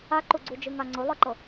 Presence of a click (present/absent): present